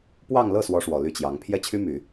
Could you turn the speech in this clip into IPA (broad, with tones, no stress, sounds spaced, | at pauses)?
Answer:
p w ɑ˥˧ ŋ l ɤ˥˩ s w ɔ˥ ʂ w ɔ˨˩ l y˥˩ t͡ɕ j ɑ˧˥ ŋ pʰ j ɛ˥ t͡ɕʰ y˥ m y˨˩˦